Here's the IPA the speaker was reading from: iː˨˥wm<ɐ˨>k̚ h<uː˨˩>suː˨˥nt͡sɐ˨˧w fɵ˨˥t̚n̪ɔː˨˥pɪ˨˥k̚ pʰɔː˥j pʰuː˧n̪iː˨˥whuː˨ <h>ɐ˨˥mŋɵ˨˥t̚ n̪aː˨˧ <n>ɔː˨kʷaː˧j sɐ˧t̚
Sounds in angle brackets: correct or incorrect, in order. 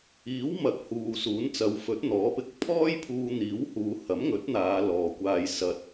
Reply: correct, incorrect, correct, incorrect

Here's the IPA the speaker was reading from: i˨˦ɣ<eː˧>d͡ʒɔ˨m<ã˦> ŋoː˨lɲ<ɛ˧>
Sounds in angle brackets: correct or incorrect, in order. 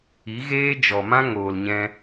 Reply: incorrect, correct, incorrect

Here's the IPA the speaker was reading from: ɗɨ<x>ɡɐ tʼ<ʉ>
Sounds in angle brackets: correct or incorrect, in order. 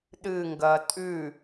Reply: incorrect, correct

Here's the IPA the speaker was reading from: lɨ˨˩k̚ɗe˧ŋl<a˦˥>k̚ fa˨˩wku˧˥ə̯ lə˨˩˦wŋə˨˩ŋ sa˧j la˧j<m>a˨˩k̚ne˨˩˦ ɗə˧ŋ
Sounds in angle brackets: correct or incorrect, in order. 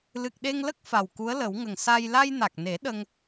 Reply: incorrect, incorrect

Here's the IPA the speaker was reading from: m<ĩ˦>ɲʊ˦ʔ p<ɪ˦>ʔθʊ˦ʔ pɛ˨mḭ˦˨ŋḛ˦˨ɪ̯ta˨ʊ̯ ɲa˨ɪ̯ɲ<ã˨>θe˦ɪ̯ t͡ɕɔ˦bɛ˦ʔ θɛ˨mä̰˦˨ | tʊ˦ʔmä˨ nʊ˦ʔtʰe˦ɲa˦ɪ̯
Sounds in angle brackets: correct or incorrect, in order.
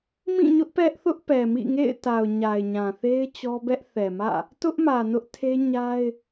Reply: incorrect, incorrect, correct

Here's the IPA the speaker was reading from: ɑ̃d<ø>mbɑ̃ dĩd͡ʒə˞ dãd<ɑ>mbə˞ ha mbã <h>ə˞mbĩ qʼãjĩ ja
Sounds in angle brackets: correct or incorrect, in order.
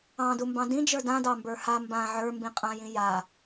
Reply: incorrect, correct, incorrect

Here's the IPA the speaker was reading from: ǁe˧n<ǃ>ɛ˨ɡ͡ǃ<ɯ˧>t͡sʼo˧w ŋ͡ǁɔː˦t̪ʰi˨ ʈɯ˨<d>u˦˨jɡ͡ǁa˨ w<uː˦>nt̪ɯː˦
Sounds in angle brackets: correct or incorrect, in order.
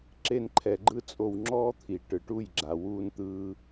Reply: incorrect, incorrect, incorrect, correct

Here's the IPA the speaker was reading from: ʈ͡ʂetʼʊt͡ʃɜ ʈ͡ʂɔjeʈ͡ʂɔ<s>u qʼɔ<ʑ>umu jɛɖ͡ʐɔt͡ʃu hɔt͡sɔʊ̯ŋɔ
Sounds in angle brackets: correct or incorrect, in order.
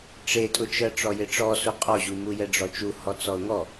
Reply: correct, correct

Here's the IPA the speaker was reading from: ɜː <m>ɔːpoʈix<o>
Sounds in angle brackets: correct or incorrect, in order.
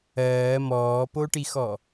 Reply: correct, incorrect

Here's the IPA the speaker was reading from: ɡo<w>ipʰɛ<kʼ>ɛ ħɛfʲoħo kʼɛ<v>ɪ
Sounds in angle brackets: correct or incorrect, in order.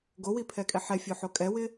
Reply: correct, correct, incorrect

